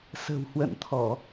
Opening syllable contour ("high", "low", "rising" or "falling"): low